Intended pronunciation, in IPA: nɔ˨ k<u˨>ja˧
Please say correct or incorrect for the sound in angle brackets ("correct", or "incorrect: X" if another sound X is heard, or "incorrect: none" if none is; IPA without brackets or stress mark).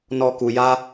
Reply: correct